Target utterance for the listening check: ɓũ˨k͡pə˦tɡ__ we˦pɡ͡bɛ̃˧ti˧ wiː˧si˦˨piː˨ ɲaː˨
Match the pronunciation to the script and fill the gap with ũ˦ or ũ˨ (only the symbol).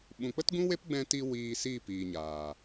ũ˦